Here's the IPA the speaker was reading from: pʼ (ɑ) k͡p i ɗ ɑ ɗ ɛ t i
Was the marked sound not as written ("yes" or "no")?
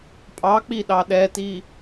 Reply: no